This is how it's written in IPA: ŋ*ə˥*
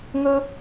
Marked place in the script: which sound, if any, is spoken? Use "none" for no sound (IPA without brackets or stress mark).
ɵ˥